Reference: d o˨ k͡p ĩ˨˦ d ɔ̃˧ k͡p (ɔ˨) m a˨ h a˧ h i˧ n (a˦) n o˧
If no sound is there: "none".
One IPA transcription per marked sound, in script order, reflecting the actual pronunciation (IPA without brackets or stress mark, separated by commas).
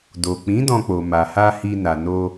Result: o˨, a˨